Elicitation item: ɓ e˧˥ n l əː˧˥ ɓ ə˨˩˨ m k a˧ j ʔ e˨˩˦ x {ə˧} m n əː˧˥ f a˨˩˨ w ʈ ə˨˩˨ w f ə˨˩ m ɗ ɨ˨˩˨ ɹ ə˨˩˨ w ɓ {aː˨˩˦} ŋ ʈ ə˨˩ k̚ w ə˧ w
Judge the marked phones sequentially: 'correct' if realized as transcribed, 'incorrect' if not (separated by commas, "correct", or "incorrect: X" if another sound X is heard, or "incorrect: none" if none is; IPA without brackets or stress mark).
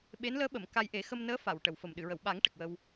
correct, correct